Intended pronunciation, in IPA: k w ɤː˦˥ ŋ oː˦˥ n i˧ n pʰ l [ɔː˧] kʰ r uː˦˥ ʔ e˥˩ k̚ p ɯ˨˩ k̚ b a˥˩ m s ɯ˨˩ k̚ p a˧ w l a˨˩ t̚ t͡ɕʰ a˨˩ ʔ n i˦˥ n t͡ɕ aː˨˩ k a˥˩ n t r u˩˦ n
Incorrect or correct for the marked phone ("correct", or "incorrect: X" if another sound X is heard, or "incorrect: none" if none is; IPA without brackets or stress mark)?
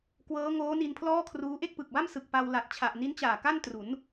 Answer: incorrect: ɔː˥˩